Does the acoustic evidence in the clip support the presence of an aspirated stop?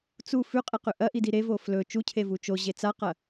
yes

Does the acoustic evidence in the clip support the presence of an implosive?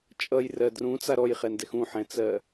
no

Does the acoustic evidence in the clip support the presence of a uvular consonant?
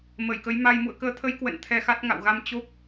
no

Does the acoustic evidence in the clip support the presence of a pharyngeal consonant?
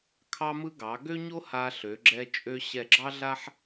yes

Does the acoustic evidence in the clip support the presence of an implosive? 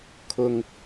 no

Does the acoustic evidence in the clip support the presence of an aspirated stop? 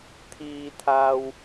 yes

